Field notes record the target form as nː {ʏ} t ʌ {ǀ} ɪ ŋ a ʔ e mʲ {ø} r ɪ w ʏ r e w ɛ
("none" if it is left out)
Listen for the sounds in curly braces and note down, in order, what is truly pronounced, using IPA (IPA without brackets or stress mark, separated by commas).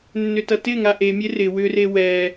ʏ, t, e